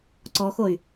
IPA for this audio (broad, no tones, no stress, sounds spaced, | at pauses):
ǀ ɔ x o y̯